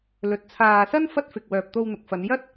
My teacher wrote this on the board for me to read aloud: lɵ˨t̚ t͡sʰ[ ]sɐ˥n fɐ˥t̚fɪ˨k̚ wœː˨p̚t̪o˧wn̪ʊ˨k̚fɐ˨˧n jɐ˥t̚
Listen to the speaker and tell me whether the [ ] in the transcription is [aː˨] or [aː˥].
aː˨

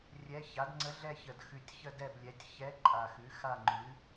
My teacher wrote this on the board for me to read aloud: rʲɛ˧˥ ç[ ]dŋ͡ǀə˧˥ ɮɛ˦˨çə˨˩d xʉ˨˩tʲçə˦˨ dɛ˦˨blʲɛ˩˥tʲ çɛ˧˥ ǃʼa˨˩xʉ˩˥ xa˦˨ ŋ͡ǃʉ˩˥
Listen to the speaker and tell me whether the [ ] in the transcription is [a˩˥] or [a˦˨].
a˩˥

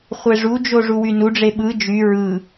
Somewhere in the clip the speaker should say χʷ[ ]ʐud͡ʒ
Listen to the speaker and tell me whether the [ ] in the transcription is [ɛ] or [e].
e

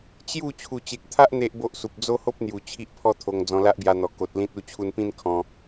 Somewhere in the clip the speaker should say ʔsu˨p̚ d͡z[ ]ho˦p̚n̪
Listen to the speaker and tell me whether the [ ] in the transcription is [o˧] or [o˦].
o˦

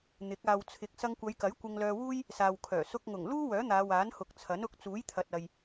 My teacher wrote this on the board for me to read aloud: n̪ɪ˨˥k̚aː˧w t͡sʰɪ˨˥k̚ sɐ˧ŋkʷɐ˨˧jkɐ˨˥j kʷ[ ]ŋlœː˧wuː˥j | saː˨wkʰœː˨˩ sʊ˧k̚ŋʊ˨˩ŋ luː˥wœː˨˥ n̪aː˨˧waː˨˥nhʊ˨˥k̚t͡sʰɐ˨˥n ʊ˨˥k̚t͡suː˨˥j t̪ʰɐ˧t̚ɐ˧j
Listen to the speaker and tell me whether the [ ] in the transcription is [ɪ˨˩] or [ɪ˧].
ɪ˧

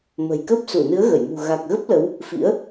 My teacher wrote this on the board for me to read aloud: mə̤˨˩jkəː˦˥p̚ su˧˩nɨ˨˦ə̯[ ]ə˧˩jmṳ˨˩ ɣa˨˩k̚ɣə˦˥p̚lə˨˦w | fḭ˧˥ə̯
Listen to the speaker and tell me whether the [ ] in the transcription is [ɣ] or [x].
ɣ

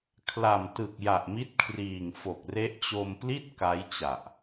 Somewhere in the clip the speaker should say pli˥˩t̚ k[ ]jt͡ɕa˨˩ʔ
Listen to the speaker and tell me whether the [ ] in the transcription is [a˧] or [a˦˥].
a˦˥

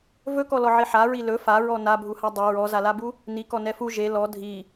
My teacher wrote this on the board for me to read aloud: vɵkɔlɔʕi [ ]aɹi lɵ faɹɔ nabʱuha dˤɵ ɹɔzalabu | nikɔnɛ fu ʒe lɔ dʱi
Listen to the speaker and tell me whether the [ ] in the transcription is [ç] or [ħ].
ħ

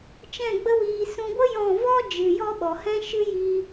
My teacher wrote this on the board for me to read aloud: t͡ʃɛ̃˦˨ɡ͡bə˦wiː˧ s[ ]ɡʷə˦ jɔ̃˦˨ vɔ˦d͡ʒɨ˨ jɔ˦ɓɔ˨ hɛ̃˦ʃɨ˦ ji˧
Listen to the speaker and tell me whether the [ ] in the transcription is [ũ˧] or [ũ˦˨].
ũ˧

